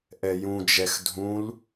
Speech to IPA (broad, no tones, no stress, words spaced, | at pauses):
ʔɛjũd͡ʒɛx dʱũl